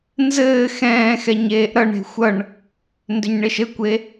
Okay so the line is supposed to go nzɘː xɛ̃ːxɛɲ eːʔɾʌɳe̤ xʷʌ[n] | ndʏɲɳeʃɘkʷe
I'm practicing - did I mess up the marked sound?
yes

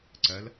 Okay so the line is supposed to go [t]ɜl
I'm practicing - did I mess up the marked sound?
yes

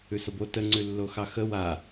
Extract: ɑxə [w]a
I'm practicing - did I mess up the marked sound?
no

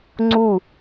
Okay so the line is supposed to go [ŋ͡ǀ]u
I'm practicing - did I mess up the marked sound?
no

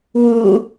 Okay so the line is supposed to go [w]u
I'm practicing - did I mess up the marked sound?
no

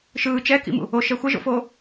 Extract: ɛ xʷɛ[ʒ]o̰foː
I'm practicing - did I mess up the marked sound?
no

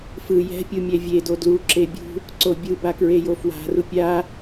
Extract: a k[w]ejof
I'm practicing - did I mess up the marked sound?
yes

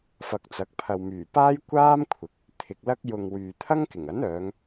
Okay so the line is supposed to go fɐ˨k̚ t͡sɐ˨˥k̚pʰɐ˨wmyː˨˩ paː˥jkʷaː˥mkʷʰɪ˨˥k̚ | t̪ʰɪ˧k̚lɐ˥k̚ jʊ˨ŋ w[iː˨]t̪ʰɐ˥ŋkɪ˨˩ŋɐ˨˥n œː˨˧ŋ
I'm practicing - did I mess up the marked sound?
yes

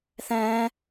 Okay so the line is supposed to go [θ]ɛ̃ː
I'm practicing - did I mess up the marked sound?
no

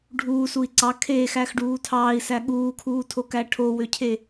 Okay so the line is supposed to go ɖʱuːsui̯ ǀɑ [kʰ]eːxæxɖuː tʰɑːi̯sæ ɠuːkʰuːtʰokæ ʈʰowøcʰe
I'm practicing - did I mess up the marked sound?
no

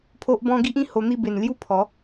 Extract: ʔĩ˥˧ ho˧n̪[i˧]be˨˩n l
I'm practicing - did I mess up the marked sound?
yes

